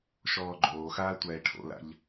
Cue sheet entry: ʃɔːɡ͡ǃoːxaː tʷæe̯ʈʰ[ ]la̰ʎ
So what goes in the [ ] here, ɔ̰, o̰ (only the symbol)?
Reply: o̰